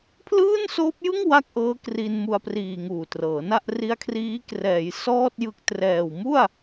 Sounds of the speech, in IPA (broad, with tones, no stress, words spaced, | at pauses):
pʰlɯː˥˩nsoː˦˥p̚jɯ˥˩ŋ wa˥˩k̚ʔɤː˦˥ kri˧nmu˧a̯priː˨˩ ŋuː˨˩trɤː˩˦na˥˩ʔ ri˦˥a̯kʰriː˦˥ krɛː˩˦j sɔː˥˩t̚jɯ˦˥k̚trɛː˨˩w mu˥˩a̯